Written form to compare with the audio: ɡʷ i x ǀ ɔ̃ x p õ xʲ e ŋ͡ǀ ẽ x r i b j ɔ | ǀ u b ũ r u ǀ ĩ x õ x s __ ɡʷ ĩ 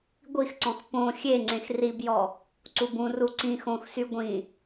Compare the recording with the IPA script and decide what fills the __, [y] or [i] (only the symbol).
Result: y